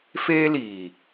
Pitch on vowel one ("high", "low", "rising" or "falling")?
high